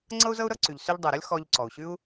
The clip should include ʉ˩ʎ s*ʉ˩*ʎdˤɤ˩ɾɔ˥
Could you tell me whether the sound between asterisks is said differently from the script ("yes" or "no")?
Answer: yes